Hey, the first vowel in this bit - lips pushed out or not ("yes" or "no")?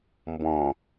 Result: yes